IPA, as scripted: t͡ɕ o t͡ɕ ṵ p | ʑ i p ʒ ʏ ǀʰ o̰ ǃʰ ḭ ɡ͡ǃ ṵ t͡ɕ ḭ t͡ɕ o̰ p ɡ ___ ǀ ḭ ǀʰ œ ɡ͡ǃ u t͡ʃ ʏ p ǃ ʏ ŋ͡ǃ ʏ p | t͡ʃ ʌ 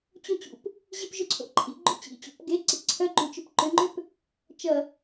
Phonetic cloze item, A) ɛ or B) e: B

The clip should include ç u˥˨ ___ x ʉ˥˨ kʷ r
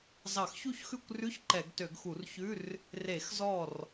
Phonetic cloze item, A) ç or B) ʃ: A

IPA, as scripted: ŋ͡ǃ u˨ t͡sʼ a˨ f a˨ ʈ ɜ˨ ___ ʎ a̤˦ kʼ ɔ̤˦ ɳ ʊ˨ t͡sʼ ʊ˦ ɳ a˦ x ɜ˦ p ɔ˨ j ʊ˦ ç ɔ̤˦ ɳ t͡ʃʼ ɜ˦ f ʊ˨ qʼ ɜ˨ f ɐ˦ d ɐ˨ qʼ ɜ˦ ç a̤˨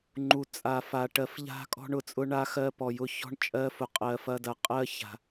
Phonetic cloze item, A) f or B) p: A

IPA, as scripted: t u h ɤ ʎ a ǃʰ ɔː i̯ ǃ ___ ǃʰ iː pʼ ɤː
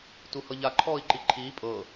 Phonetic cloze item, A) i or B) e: A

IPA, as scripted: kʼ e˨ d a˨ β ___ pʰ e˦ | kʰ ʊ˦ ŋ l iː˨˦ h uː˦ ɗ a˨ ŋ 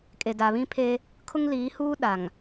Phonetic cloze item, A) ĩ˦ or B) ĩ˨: A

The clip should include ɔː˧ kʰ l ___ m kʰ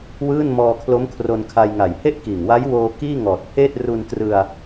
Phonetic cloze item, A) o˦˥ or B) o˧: A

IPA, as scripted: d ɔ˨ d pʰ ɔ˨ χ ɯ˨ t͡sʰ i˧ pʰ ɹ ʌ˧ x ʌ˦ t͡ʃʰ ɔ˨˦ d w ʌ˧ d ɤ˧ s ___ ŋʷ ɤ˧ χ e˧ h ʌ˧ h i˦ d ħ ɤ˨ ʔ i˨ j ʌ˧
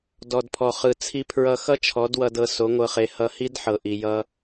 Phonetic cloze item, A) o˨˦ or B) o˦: A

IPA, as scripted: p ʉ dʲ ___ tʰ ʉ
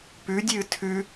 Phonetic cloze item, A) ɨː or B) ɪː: A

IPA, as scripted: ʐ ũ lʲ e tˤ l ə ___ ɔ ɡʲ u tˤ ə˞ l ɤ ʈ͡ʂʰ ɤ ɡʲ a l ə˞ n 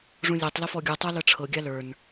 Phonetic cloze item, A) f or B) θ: A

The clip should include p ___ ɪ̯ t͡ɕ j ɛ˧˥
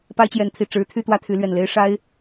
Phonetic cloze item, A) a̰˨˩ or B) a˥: B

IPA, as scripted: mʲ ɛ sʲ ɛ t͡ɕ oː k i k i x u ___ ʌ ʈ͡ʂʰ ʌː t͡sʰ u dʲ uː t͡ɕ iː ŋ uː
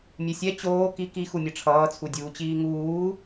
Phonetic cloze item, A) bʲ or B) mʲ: B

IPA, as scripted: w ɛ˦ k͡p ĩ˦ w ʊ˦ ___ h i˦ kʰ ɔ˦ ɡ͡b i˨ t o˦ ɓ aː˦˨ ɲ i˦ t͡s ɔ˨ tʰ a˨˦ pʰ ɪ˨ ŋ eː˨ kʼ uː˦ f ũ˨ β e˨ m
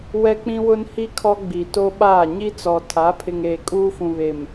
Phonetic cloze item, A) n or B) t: A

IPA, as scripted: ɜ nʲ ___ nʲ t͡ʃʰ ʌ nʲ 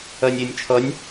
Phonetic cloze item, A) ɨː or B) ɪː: B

